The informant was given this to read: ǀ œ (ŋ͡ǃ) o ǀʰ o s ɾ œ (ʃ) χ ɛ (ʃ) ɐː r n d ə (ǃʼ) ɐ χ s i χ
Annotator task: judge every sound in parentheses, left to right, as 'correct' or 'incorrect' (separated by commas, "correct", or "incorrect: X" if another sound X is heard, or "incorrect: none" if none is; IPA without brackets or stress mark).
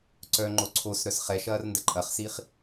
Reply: correct, incorrect: s, correct, correct